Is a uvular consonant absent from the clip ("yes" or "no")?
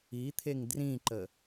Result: yes